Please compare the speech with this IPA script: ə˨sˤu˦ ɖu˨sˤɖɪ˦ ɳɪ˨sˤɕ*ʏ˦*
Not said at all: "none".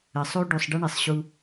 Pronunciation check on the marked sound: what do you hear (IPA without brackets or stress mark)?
u˦